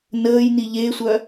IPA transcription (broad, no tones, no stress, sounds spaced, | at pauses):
n əː j n i ʎ e sʷ œ